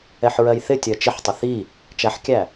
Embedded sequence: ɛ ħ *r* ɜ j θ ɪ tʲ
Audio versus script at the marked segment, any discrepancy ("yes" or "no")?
yes